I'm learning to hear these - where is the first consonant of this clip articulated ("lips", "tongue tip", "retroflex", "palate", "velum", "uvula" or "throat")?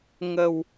velum